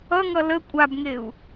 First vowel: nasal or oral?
oral